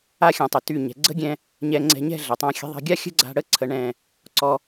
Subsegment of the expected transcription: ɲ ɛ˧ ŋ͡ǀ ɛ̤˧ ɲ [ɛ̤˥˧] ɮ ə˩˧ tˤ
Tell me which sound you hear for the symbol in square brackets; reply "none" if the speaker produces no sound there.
ɛ̤˥˧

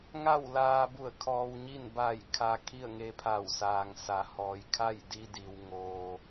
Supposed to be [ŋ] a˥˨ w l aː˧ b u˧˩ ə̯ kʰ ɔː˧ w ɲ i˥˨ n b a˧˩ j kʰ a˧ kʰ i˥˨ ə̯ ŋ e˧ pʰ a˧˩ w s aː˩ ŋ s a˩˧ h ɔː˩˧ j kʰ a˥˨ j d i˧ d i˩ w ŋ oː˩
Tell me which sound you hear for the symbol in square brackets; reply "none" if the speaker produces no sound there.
ŋ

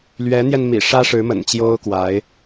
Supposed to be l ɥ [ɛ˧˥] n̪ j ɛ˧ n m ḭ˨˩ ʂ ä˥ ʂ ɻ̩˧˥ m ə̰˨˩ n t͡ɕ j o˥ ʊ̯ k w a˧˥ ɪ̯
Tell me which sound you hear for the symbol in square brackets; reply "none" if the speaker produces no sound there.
ɛ˧˥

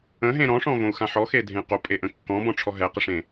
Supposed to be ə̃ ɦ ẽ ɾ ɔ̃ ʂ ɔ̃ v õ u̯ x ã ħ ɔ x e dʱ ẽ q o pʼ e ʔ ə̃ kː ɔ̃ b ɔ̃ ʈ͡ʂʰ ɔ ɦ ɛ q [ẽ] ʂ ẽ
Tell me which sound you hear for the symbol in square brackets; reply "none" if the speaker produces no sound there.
e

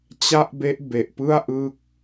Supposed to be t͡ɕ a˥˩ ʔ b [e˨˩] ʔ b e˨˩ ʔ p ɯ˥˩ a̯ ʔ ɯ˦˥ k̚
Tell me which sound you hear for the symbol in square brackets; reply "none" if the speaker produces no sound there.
e˦˥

